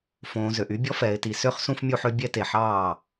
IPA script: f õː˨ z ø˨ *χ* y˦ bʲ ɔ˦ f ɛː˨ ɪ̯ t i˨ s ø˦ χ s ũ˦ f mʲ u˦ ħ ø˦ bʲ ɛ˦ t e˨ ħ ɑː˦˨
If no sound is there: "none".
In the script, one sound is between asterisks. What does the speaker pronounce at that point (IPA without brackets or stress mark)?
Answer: ʔ